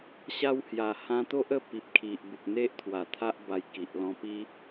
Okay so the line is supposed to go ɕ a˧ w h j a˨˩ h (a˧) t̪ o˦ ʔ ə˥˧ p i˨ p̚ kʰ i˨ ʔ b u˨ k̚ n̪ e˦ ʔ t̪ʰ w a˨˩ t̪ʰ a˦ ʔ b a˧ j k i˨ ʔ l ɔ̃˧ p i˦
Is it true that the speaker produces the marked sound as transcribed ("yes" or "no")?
no